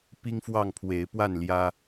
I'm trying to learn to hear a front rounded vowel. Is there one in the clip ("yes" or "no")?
no